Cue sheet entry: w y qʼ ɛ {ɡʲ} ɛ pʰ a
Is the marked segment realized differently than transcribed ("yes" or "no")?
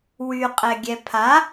no